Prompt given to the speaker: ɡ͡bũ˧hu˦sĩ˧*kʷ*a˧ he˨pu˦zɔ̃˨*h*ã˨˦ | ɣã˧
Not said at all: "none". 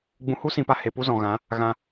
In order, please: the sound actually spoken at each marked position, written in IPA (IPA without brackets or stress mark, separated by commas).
p, ɣ